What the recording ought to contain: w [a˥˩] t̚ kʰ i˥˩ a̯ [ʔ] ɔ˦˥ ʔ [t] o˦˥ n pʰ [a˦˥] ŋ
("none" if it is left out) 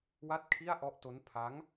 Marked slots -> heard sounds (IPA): a˥˩, ʔ, t, a˦˥

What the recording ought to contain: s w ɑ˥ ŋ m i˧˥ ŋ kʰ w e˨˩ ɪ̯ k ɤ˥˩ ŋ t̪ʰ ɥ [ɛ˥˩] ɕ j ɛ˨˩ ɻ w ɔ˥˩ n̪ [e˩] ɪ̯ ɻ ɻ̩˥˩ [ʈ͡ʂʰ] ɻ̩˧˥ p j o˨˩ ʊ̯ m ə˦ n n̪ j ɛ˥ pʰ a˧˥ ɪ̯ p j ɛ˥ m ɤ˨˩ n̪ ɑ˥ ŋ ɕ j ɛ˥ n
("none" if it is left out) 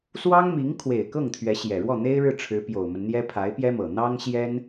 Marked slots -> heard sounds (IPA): ɛ˧˥, e˥, ʈ͡ʂʰ

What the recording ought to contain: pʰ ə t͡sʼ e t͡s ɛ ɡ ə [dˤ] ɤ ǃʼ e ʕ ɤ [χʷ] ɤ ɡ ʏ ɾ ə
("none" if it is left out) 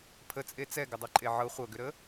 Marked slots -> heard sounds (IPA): dˤ, χʷ

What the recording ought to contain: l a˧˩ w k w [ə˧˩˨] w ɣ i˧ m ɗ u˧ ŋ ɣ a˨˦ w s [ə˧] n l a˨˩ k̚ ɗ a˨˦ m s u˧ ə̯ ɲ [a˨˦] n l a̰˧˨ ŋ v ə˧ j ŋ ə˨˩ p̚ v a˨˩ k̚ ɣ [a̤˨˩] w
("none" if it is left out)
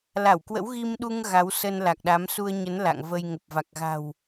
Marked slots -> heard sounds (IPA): ə̰˧˥, ə˧, ə˨˦, a̤˨˩

